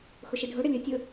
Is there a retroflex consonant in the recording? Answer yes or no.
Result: yes